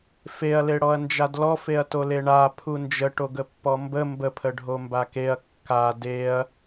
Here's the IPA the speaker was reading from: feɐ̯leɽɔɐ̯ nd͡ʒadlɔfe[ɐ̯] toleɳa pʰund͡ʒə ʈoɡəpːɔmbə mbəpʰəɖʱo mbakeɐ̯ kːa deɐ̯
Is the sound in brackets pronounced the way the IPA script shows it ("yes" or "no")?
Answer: yes